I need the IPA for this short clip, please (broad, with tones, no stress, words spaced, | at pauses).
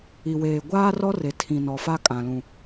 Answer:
i˨weː˨ ɡʷaː˦rɔ˦ re˨tʰĩ˨nɔ˨ fa˦kʼã˨ lũ˨